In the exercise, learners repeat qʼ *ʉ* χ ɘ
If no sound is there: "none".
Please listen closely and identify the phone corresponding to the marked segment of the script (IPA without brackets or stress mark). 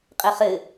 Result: ɘ